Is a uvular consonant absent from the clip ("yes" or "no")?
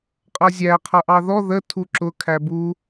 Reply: no